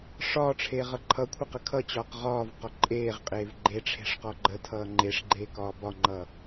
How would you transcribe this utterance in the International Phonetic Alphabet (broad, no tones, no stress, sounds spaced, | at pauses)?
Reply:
ʂ ɒː ʈ͡ʂʰ eː ʁ ʌ ǃʰ ʌ kʷʰ ʌ q ə kʰ ʌ t͡ɕ ɒː q ʁ ɒː v q ɒ ǃʼ eː ʁ qʼ eː v ɡ͡ǃ e ʈ͡ʂʰ e̤ ʂ q ɒ ɡ͡ǃ ə tʰ ʌː ŋ͡ǃ e ʂ ɡ͡ǃ eː k ɒː b ɒ ŋ͡ǃ ʌː